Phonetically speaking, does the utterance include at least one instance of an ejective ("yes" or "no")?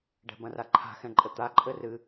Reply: yes